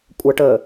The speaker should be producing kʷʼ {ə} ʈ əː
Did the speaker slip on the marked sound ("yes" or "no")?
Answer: no